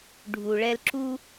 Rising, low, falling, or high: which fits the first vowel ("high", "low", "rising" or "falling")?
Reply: low